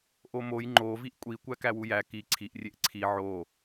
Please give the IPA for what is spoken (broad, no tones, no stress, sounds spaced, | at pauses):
ʔ o m o j ŋ͡ǃ o v i ʔ kʷʼ i kʷ æ k æ w u j æ k i ǀʰ i ʔ rʲ e ʔ ǀʰ i ʕ o